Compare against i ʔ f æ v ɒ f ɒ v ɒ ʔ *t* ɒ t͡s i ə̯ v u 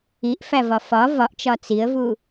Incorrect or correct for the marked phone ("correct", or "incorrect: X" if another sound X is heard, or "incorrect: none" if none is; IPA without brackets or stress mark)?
incorrect: t͡ʃ